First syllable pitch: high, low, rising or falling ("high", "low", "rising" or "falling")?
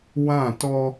falling